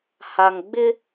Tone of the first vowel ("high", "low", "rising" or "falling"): low